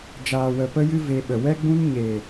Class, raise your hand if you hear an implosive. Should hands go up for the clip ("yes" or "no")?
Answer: yes